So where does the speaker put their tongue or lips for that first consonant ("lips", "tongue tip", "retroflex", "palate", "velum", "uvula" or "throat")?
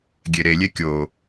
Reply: velum